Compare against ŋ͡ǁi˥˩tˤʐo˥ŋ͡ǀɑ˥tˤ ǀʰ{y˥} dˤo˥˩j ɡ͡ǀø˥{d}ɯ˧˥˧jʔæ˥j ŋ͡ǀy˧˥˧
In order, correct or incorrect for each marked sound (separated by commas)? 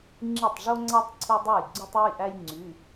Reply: incorrect, incorrect